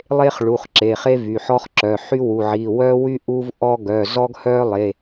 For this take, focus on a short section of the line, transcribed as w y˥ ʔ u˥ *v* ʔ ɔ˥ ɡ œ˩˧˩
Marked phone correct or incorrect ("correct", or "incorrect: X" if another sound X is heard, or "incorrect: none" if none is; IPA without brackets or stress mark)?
correct